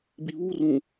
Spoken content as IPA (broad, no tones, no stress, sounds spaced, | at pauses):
b i β u r ũ